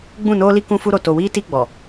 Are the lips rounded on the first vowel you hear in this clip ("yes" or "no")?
yes